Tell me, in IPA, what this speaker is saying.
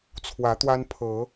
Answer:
t͡sʰ w ä˨˦ t̪ w a˦ n pʰ ɤ˨˦

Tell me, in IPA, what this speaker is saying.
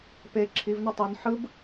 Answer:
p e ǁʰ i v n ʌ tˤ o n ħ ɯ b

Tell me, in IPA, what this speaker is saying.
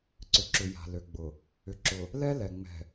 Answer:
ǀ ʏ˨ ǁ ʏ˨ j a̤˨ l ø˨ ɡ͡b ʊ˨ | ʏ˨ ǁ ʊ˨ | l ɛ˦ l ɛ˨ ŋ͡m ɛ̤˨

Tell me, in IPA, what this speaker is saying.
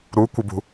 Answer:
ɾ u kʷ ə b ṳ

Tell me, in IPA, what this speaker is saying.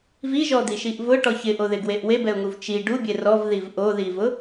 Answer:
v i ʒ ɔ d̪ i ʃ i ʔ v ʊ ʈ ɔ ç ɪ ʔ o ð ɪ ɡ w e ʔ w e b ɛ ʊ̯ ŋ u v t͡ʃ i ɖ u bʲ e r ɔ v ð i v ʔ o ð i v ʊ

